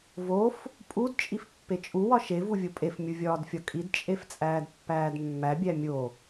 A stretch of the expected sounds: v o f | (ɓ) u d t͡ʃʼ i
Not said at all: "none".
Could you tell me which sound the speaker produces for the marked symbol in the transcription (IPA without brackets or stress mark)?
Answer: pʼ